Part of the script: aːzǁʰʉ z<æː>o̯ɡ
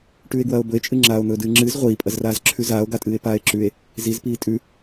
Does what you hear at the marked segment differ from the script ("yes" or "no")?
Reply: yes